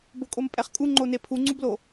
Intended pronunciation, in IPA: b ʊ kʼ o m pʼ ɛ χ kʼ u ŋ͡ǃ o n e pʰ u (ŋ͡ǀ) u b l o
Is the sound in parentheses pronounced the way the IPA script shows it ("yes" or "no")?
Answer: yes